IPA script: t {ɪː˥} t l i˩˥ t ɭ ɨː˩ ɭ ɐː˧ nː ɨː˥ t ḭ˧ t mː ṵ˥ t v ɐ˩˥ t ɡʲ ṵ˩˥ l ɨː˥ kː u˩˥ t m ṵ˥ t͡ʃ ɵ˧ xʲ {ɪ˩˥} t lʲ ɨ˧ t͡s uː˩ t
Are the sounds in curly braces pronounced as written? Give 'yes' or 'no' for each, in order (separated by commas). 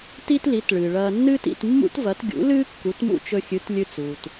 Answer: no, no